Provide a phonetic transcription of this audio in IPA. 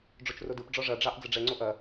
ɖ͡ʐ o t͡ʃ r o d ɯ p ɖ͡ʐ ɔ ʐ ɐ ɖ͡ʐ ɑ ʔ d͡z ə ɖ͡ʐ ɛ ŋ͡ǀ o ʔ ɐ

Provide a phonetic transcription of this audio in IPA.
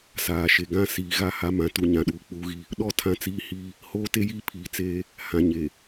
s aː˨ ʃ e˨ ɡ ã˦ s iː˨ ɣ a˦ h a˦ m ã˨ t u˨ ɲ ã˨ ɗ uː˨ k͡p uː˦ ɣ i˦ | ɗ ɔ˦˨ tʰ ã˦ t͡s iː˦ h iː˦ | h oː˦ t e˦ j iː˦ pʰ iː˨ t͡s eː˦ | h ã˨ ɲ e˨

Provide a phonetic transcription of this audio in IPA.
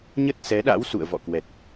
ɲ ə˦˥ t̚ s ɛ˨˦ ɗ a̰˧˥ w s ṵ˧˨ ə̯ v ɔ̰˧˨ k w ɛ˨˩ t̚

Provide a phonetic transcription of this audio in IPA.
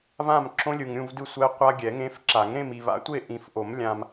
v ã˥˧ m ǁ õ˦˥ lʲ ɯ˨ ŋ ɾʲ ũ˥˧ v d ɯ˥˧ sʷ ɛ˦˥ qʷ a˦˥ ɡʲ ɛ˨˩˦ ŋ ẽ˦˥ f ǁ a˨˩˦ ŋ ɾ ẽ˥˧ m iː˨ v a̰˦˥ tʷ e˥˧ ʔ ĩ˨ f ʔ o˨˩˦ m lʲ ã˨ m

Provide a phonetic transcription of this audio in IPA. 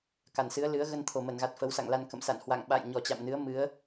k a˧˩ n s ɨ˨˦ ə̯ l ɨ˨˦ ə̯ ɣ ə˧ n t̪ʰ o˨˩ m ə˧˩ n ɣ a˨˩ t̚ f ə˨˦ w s a̰˧˨ ŋ l a˧ n k ə̰˧˨ m s a̰˧˨ n h w a̰˧˨ ŋ ɓ a̰˧˨ j ɲ ɔ˨˩ t͡ɕ a̰˧˨ m n ɨ˨˦ ə̯ m ɨ˨˦ ə̯

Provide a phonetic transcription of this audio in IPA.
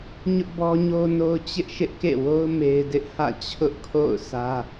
ɲ ʊ˦ ʔ b ɔ˦ ɲ o˦ n o˦ ʊ̯ t͡ɕ ɪ˦ ʔ ʃ ɪ˦ ʔ k ḛ˦˨ w o˦ ʊ̯ m e˦ ɪ̯ d ɪ˦ ʔ h ä̰˦˨ t͡ɕʰ ʊ˦ ʔ kʰ o̰˦˨ ʊ̯ sʰ ä˦

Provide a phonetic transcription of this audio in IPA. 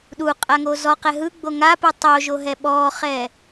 ɗ u qʼ a ŋ o z ɔ q ɛ ɦ ɯ ɡ͡b o ŋ a p ɯ tˤ o ʒ o ɦ ɛ ɓ ɔ χ ɛ

